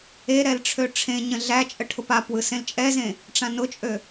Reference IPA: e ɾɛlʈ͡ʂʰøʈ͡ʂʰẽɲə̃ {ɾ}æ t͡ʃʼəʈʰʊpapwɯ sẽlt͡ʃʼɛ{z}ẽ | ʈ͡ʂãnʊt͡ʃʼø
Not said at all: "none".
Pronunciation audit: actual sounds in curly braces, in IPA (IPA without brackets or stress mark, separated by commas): ɮ, z